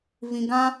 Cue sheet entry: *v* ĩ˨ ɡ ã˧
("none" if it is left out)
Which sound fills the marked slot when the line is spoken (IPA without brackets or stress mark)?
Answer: v